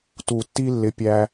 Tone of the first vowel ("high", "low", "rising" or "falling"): low